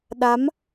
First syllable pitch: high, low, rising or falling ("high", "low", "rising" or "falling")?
rising